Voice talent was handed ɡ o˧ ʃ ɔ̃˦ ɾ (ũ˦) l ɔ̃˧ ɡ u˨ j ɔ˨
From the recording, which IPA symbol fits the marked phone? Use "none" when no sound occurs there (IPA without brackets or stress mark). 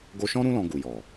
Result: ũ˦